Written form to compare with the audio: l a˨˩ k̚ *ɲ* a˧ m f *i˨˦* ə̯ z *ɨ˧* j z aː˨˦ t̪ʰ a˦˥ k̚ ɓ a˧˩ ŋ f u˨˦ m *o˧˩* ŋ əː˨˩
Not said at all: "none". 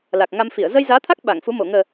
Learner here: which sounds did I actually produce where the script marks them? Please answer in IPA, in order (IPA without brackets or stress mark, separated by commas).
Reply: ŋ, i˧˩, ə˧, o˧˩